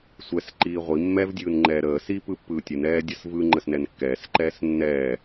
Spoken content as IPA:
sʷɛsǃiː ʁʷi mːɛvdʲɯːnŋ͡ǃɛː ɾəː sipɯpːɯː tʲɯnɛːdʲəs vɯŋ͡ǃəsnɛn kːɛːsǃɛːs nːɛː

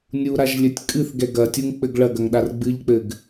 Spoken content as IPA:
nʲuɾaʒlʲɘtʲ kʼɨθɡɛ ɡɐtʲuŋk͡pɘɡ ɭɐɡɐŋɗar ɡ͡bɨʎk͡pɘɡ

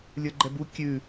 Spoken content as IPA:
lʲə˞ɡ͡ǃɛbu kʲʉ

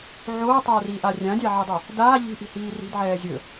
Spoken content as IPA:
ʕoːtˤɛːriːʔa rʲãdʲaʕedˤo | daː ʎi̤ʔi̤hiː ri̤dʕɛː zʲɵ

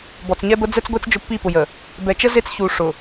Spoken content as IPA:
bɔ˨t͡sɲɛ˦bə˦ d͡zɛ˦t͡sɡʷe˦t͡s d͡ʒʊ˦pːi˦˨pʊ˨jə˨ | bɛ˨t͡ʃə˦ ze˦t͡sçu˨ ʂʊ˨

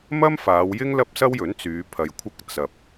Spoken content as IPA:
mɐ˥mfaː˨˧wjɪ˥ŋ lɐ˥p̚sɐ˥wjɵ˨˥nt͡syː˨˧ pʰɐ˧jkʷʰɐ˥k̚ t͡sɐ˨p̚

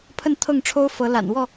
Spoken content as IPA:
pʰə˥˨nt̪ʰɤ˥˨ŋʈ͡ʂʰo˦ʊ̯fɤ˨˦ la̰˨˩n wɔ˥˨

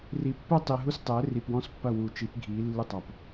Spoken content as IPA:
ri˨˦pːɘ˦tˤi˨ɦu˦s tˤɘː˨˦ri˨pwɔ̃˦s pːɐ˦˨wu˨t͡ʃi˨˦p ɡʱiː˨˦lːɨ˦tˤa˨p

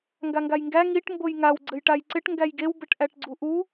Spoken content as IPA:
ŋɡaŋɡajŋɡæ ŋiʈ mbojŋaw ɡ͡ǀɘjʈajǀɪʈ ŋɡæjɡew bɘʈʔæʈɡ͡ǀuʔu

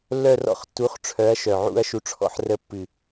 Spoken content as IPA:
lːœ˥˨rɔ̰˥˨χtːu˨˥χʈ͡ʂʰœ˨˥ɐ̯ ʃœ˨˩ʕṵ˥˨ɐ̯ʃu˧ʈ͡ʂʰɔ̰˥˨ħ rə˧˥˧pːɨ˨˩

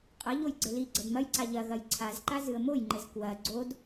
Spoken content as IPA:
qʼɐ ʎojɡ͡ǀɘliɡ͡ǀɐd mɐjǀa ʎɐɣɐj ǀʰazǃa zɨə̯mojŋ͡ǃɘz kwɐ ɡ͡ǀod

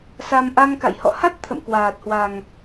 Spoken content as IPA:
sa˧m ʔa˧ŋka̰˧˨jhɔ̰˧˨ ha˦˥t̚ t̪ʰə̰˧˨mkwaː˨˩t̚hwa˨˩ŋ

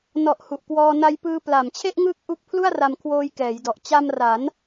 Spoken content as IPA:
nɔ˨˩ʔ hu˨˩ʔkwɔː˧na˦˥jpɯː˦˥ pla˨˩mt͡ɕʰe˥˩ʔŋɯː˦˥k̚ ʔu˦˥k̚pʰlu˥˩a̯ra˧m kʰwoː˦˥j kɛː˩˦jdɔ˨˩ʔ t͡ɕa˧mra˩˦n

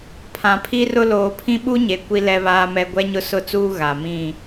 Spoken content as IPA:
pʰã˨pʰi˦rʊ˦ loː˨pʰĩ˦ɓu˦ɲe˨ kʷi˦lɛ˦βaː˦mɛ˦ ɡʷɛ˦ɲʊ˦ sʊ˦t͡suː˦ ɣa˨mĩ˦˨

